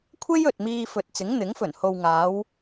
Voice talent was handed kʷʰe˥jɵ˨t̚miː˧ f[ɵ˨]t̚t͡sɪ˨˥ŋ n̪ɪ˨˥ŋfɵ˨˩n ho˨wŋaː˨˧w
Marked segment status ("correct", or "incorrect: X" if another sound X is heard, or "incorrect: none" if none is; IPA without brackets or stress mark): correct